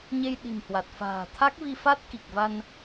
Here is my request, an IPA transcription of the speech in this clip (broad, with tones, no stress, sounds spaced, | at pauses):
ɲ e˧ j ɗ i̤˨˩ m h w a˨˩ t̚ f a̤ː˨˩ t̪ʰ a˦˥ k̚ v i˧ f a˦˥ t̚ k i˨˩ k̚ v a˧ n